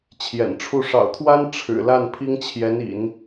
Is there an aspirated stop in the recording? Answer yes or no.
yes